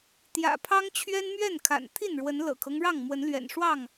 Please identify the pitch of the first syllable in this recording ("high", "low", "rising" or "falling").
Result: low